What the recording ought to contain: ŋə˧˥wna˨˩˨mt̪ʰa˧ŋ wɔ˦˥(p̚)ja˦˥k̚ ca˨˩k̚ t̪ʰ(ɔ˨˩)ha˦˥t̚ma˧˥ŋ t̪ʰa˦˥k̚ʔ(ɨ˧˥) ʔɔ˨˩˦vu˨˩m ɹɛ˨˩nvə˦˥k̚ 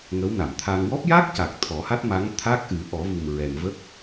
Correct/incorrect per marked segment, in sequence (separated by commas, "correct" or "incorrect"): correct, incorrect, incorrect